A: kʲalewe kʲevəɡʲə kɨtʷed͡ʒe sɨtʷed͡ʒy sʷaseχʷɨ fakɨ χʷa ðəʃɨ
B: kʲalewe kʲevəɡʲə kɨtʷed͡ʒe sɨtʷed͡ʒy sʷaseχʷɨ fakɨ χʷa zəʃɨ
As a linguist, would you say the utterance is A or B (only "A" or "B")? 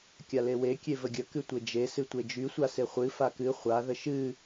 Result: A